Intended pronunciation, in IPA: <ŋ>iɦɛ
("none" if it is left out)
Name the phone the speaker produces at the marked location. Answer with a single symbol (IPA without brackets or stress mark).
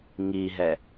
ŋ